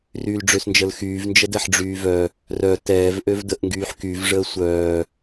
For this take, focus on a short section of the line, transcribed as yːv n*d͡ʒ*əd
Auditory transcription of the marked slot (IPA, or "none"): d͡ʒ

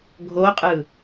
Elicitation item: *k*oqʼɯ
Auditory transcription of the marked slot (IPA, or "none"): ɡʱ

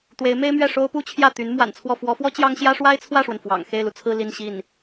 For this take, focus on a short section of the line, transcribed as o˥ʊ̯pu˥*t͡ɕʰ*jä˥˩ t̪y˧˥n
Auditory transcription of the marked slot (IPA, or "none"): t͡ɕʰ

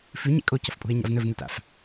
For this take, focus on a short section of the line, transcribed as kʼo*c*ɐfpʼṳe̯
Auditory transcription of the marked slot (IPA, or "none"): c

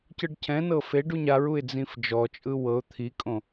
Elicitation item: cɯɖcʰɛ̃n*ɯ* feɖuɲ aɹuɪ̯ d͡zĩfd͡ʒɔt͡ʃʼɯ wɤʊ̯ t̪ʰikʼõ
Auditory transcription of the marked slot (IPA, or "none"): ɤ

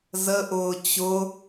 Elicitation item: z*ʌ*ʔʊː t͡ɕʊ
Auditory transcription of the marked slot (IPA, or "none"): ə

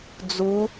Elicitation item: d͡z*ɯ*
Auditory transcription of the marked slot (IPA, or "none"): u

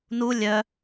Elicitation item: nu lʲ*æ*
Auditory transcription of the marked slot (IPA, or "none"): œ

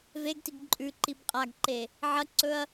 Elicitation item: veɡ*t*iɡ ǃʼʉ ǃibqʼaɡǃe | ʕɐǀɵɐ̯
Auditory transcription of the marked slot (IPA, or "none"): t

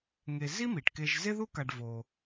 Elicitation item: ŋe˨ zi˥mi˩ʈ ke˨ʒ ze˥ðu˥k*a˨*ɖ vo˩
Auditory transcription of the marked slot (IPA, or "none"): a˨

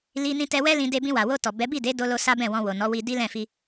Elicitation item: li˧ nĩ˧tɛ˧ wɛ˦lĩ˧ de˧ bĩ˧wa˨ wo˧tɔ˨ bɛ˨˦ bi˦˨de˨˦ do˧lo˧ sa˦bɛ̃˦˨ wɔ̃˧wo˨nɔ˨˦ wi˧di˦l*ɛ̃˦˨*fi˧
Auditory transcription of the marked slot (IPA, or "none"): ɛ̃˦˨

